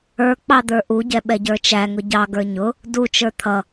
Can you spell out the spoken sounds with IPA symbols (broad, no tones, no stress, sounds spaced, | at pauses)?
ə˞ k͡p ɑ d̪ ə˞ ʔ u ɟ ɛ ɓ ɛ ɟ ə˞ t͡ʃ æ ŋ ʊ ɟ ɑ ɡ ə˞ ɲ ʊ | d u t͡ʃ ə˞ t̪ʰ ʌ